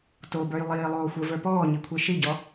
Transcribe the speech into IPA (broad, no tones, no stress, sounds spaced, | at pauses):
t o b ə˞ j lˠ iː lˠ oː xʷ ə˞ v ə˞ p ɔː ɲ i kʷʰ i ʃ i ɟ ɔ